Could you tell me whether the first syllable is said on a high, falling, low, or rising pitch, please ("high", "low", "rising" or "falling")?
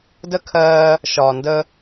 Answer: high